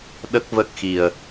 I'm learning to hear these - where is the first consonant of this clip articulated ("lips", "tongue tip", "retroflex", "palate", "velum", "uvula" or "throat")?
tongue tip